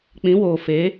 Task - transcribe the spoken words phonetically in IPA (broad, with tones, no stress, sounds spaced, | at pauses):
k͡p ĩ˨˦ w oː˨ f e˨˦